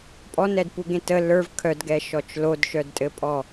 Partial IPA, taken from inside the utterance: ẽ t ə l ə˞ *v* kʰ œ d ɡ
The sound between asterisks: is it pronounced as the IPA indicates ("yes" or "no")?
yes